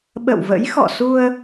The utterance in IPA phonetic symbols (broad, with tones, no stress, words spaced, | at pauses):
ɓə̰˧˨wvə̰˧˥jxɔ̰˧˨su˧ə̯